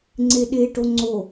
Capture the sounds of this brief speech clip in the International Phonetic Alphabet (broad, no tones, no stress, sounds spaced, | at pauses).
ŋ͡ǀ e ɗ e ʈ o ŋ͡ǀ o